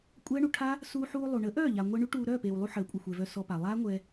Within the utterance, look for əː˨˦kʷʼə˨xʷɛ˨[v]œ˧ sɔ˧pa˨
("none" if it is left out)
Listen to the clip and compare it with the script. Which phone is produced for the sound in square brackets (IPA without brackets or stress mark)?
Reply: v